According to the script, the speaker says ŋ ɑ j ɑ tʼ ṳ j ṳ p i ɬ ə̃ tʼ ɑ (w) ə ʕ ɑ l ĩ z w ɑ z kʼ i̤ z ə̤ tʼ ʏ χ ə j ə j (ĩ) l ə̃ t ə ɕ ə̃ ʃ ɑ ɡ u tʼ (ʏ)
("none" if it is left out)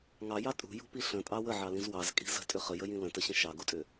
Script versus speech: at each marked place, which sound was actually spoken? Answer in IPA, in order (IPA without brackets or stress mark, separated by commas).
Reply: w, ĩ, ʏ